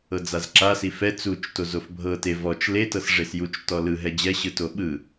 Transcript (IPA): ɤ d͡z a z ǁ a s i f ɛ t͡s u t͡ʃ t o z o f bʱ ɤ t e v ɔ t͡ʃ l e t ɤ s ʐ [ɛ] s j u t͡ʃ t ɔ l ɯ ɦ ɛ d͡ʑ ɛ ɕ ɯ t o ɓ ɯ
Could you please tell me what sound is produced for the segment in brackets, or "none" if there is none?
e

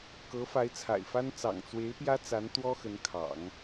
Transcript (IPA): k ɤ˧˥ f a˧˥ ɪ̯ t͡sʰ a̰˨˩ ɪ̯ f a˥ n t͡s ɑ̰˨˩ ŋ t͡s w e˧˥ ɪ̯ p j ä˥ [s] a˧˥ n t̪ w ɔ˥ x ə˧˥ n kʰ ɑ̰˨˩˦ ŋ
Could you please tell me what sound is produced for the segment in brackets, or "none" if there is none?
t͡s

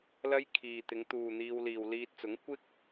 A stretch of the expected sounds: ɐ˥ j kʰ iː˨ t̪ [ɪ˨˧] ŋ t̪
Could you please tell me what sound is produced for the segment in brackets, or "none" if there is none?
ɪ˨˧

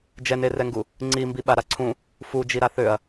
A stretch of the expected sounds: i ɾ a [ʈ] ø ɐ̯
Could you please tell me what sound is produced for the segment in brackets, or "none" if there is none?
θ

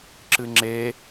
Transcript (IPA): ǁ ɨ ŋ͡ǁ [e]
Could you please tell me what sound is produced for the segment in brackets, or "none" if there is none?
e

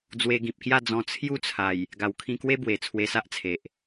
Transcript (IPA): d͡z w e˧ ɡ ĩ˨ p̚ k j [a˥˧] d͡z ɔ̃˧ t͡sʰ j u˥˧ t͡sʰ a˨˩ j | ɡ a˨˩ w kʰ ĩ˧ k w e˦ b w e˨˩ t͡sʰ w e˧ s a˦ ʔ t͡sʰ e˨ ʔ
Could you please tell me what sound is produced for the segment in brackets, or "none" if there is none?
a˥˧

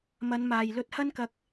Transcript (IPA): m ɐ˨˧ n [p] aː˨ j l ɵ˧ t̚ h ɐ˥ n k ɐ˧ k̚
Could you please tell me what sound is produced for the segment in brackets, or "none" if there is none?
m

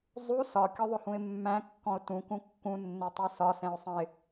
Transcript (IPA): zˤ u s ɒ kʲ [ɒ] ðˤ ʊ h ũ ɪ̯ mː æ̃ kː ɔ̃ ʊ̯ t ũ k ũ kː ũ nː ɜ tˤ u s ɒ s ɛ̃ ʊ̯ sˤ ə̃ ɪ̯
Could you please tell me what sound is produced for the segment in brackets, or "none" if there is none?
ɒ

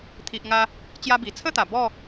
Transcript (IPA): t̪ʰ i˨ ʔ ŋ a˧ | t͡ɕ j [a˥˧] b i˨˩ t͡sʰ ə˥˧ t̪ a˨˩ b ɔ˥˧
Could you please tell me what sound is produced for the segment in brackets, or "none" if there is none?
a˦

